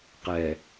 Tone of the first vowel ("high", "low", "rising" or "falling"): low